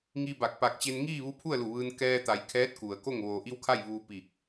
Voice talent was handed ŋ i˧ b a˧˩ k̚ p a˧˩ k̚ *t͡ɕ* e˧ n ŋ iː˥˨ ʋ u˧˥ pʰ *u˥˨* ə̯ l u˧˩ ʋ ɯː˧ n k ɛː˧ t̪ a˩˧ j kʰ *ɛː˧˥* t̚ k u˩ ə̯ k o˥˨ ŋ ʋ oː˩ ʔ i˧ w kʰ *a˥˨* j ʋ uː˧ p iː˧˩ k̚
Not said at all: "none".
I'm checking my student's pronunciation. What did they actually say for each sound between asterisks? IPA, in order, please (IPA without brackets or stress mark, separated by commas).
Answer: t͡ɕ, u˥˨, ɛː˧˥, a˥˨